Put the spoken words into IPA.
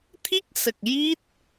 t̪ʰ i˦˥ k̚ s ə˨˩ k̚ j i˦˥ t̚

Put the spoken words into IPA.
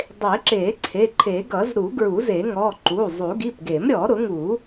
dˤ e˨˩˦ ǁ e˨˩˦ ǀʰ e˩˧˩ ǃʰ e˨˩˦ ɡ ʌ˨˩˦ z ɾ u˨˩˦ ɡ ɹ u˨˩˦ z e˨˩˦ ŋ ɔ˩˧˩ ǃ u˩˧˩ zˤ u˨˩˦ ɡ i˩˧˩ p ɡ e˨˩˦ m ɾʲ ɔ˨˩˦ ɾ ʊ˨˩˦ ŋ u˨˩˦

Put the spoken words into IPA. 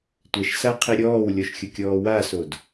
tʷ ɛ ʃ s a qʰ i ɾʲ ɔː w lʲ ɔ ʃ xʲ ʊ kʲ ɔː w a s o d

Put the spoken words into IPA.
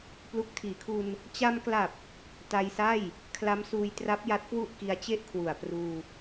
p l u˨˩ k̚ tʰ iː˩˦ kʰ u˧ n | t͡ɕ a˧ m k l a˨˩ p̚ | t a˧ j s a˥˩ j | kʰ l a˦˥ m s uː˧ j t r a˦˥ p̚ j a˦˥ t̚ k w u˥˩ ʔ k i˧ a̯ t͡ɕ e˥˩ ʔ kʰ w u˨˩ a̯ p r uː˧

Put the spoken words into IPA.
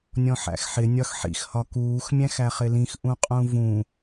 nʲ ɔ̃ ħ æ̰ x ħ ɪ nʲ ɒ x ħ ḭ x h ɒ k uː x mʲ æ̃ x æ χ ɪ l ĩ x ʔ ũ qʼ ũ v ũ

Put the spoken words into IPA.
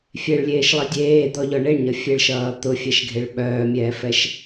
fʲ e ɭ lʲ eː ʃ lˠ i dʲ eː d̪ ɔ ʎ ɔ ɳ e ɳ ɲ ʌ fʲ e ɭ ʃ ʌː t̪ ʊ fʲ ɛ ʃ ɡʱ e ɭ ɓ œː mʲ ɛː f ɛ ʃ

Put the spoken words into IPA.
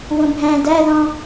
w õ bʱ æ̃ d æ ð ɔ̃

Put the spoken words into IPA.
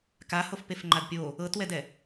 k a h o f p e f ŋ͡ǃ a d pʲ o | ɤ t w ɛ d ɛ

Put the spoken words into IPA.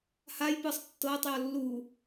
h a j p ɯ sˤ tː ɤː tˤ j ɔ lː u

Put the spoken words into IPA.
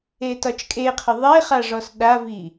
e t ɒ t͡ʃ kʼ e qʰ ə ðˤ e χ a ʐ ɔ s ɗ a v i

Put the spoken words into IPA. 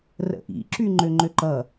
r ə̰ ʔ ḭ ǁ y ŋ͡ǃ ø ŋ͡ǃ ø ǃ ʌ

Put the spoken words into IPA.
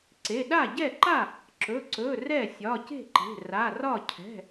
ǀ e˩˧˩ ɗ a˥˩ ɟ ɛ˥˩ ǃ a˥˩ | ǁ ɵ˩˧˩ ǀ ɵ˩˧˩ r ɛ˥˩ sʲ ɒ˩˧˩ c e̤˥˩ ǃ e̤˩˧˩ r a˩˧˩ r ɒ˥˩ cʰ ɛ̤˩˧˩

